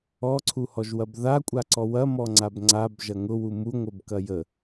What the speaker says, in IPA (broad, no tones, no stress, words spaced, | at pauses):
ɔǀʰuhɔʒwɐb ða kʷʼaǀɔwɐ mɔŋ͡ǀabŋ͡ǀab ʒɐŋʊwu muŋʷəbkɐ jə